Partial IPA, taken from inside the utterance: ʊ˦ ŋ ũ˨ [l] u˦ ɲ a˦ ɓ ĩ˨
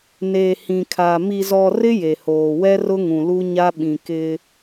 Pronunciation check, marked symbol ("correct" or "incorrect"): correct